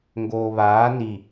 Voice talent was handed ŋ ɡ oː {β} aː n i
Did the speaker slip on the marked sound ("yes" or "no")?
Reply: no